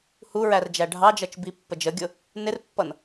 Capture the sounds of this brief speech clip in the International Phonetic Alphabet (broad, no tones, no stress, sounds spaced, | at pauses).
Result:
h u ɹ æ r d͡ʒ æ ɖʱ ɑ d͡ʒ ʌ t͡ʃ b i pː ə d͡ʒ ə ɡʲ ʊ | n ɪ r pː ʌ n